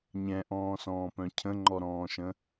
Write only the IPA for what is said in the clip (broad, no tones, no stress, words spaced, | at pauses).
ɲɛ̃ʔɔ̃ːsɔ̃ːpœ̃ cʰə̃ŋ͡ǃɔɾɔ̃ːʃə̃